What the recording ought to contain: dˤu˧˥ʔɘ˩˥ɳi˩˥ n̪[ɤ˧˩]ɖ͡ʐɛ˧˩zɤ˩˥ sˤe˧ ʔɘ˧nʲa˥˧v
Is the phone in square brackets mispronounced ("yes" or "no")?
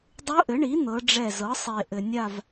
yes